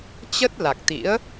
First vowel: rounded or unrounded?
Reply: unrounded